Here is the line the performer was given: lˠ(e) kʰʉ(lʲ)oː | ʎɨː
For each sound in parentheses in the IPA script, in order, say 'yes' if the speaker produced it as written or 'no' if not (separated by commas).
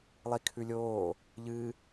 no, yes